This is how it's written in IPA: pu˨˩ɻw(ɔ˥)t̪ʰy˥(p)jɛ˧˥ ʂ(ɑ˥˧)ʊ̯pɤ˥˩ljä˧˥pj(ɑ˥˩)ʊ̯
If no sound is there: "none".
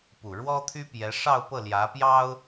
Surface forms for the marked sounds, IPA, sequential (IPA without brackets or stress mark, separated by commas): ɔ˥, p, ɑ˥˧, ɑ˥